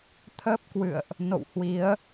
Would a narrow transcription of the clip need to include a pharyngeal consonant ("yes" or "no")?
no